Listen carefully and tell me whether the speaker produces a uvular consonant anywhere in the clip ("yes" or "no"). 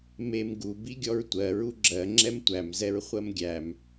yes